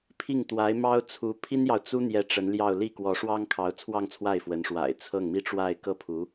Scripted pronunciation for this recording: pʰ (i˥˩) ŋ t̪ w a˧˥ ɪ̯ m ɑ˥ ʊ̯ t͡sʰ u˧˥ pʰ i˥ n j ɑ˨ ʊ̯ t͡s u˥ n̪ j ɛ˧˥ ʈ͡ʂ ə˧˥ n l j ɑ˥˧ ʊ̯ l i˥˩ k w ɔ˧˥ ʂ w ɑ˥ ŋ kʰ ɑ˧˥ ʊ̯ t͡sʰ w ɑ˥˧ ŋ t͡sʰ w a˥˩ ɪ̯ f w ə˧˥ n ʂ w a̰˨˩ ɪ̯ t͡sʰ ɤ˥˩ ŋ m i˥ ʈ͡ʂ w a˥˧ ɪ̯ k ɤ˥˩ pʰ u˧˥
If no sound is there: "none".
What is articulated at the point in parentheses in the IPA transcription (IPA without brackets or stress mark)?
i˥˩